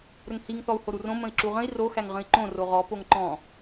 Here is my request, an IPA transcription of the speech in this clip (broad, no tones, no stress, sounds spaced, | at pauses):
ɾ ə ŋ h i ŋ θ ɔ u̯ h o ɾ u r õ m ə̃ i̯ ǁ u ʁ ə̃ i̯ r o x æ ŋ ʁ ə̃ i̯ ǃ õ r o ʁ ɔ p o ŋ ǃ ɔ̃